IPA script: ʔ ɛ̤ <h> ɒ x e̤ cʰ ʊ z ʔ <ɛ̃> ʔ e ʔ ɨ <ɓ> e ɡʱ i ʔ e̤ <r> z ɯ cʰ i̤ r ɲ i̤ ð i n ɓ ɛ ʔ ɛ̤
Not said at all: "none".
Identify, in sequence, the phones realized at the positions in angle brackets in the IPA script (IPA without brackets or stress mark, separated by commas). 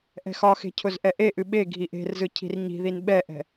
x, ɛ, ɓ, r